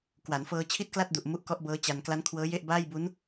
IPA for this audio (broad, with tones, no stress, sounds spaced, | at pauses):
k w a˩˦ n f ɤː˧ t͡ɕʰ i˥˩ t̚ k l a˥˩ t̚ d u˨˩ ʔ m u˦˥ ʔ k ɔ˦˥ ʔ b ɤː˦˥ t͡ɕ a˧ n k l a˦˥ n kʰ w ɤː˦˥ j e˥˩ ʔ b aː˥˩ j b u˦˥ n